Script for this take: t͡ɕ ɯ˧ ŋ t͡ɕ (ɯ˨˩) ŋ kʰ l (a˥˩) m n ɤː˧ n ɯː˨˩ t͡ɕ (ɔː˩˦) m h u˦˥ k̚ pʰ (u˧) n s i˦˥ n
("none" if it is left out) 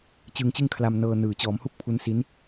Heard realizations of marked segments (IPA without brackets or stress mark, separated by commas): ɯ˥˩, a˧, ɔː˩˦, u˦˥